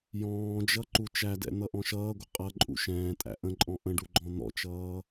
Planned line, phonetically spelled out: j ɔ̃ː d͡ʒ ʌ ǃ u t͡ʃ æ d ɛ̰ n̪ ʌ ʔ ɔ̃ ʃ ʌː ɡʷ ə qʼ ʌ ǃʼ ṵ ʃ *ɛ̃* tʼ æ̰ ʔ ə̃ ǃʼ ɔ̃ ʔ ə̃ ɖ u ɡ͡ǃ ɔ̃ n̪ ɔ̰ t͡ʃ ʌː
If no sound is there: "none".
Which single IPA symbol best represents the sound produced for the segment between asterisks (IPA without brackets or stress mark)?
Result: ɛ̃ː